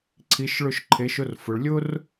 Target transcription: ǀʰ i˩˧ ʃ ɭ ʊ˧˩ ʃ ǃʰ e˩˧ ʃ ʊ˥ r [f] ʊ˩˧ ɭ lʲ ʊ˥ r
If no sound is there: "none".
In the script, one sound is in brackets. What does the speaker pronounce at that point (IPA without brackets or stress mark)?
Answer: f